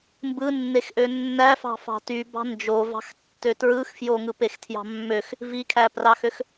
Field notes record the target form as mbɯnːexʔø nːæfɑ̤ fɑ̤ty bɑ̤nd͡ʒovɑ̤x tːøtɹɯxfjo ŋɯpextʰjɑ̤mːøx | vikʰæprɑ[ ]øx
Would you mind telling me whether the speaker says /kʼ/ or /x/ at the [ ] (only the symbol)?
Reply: x